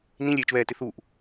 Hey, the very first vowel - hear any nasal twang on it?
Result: yes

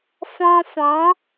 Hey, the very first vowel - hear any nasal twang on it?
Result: yes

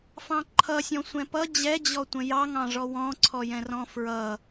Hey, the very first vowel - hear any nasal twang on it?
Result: yes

